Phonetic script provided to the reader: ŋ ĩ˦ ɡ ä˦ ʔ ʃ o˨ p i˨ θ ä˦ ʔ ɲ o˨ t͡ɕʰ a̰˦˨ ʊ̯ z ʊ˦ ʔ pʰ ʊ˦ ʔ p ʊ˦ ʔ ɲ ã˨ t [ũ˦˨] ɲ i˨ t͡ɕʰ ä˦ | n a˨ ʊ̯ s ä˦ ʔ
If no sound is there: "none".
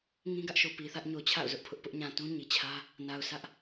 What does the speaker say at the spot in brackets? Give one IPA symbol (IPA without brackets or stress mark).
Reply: ũ˦